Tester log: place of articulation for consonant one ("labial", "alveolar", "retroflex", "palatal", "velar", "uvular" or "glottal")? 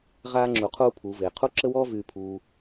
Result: uvular